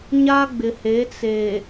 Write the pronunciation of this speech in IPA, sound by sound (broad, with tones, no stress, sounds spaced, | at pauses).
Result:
ɲ a˦ ɡ͡b ɪ˨ h e˨˦ t͡s e˨